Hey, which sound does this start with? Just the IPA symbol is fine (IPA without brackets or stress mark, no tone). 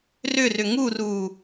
r